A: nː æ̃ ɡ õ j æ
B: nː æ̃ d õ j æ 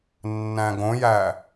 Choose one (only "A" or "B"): A